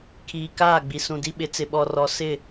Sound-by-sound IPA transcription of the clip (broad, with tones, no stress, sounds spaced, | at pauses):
kʰ iː˨ k aː˦˨ ɡ͡b i˨ s ũ˨ d i˦ ɓ ɪ˨˦ t͡s ɪ˨ ɓ ɔ˨ r ɔ˨ s ɪ˦˨